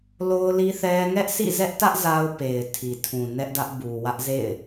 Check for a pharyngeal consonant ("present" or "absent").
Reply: absent